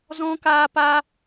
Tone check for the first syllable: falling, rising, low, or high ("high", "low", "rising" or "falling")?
high